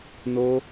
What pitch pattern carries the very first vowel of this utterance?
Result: high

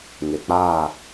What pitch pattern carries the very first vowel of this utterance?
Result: low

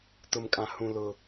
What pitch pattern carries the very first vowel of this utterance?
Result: low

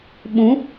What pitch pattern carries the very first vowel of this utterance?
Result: rising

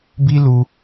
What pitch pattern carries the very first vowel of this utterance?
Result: high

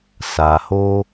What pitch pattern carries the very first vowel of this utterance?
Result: low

